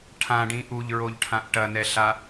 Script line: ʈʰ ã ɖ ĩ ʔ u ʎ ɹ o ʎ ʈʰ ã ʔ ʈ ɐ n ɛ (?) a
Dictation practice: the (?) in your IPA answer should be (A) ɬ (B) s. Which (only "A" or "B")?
A